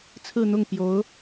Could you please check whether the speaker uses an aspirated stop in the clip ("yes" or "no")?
yes